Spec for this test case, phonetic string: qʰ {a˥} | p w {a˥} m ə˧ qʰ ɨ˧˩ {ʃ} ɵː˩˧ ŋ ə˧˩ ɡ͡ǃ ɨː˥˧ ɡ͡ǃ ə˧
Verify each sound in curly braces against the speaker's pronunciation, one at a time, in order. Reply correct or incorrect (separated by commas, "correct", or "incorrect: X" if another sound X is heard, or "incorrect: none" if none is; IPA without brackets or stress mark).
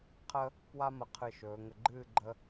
incorrect: ə˥, correct, correct